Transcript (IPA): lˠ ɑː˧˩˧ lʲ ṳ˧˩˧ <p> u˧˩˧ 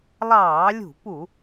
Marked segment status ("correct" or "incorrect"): correct